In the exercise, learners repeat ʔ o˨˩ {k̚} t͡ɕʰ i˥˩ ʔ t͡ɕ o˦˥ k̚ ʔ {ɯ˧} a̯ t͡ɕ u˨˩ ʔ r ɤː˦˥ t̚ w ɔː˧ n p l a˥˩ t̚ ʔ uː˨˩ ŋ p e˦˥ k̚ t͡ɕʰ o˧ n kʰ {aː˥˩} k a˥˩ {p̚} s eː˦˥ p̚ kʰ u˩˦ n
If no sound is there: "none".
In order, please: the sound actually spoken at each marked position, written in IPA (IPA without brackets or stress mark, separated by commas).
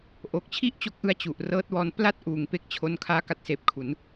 k̚, ɯ˧, aː˦˥, t̚